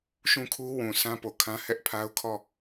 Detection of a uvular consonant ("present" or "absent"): absent